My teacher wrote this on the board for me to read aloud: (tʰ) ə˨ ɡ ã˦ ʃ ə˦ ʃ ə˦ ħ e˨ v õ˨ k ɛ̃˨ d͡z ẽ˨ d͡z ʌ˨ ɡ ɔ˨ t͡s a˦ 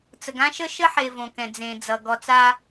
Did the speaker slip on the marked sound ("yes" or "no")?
yes